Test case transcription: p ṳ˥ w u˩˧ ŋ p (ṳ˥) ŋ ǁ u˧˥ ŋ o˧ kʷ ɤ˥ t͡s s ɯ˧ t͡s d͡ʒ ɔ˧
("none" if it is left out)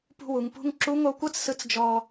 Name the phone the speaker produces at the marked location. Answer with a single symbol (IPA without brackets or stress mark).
ṳ˥